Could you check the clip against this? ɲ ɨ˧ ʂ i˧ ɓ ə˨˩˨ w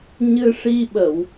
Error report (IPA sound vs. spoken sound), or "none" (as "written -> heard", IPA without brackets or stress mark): none